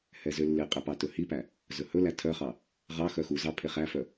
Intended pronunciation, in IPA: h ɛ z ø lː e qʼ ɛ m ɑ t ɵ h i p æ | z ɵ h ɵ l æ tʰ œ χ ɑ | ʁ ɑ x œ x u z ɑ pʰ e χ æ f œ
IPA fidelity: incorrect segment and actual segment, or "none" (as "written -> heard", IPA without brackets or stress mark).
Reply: m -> p